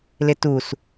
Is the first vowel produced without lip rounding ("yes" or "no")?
yes